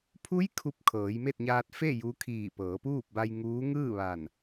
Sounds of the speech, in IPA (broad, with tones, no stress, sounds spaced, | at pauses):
pʰ u˧˥ j kʰ u˧˩ p̚ kʰ ɤː˩˧ j m e˥˨ t̚ ɲ aː˧ t̚ f e˥˨ j u˧˥ kʰ iː˧˩ p ɤː˩˧ p uː˥˨ p̚ b a˧ j ŋ uː˧˥ ŋ ɯː˥˨ ʋ a˧˩ n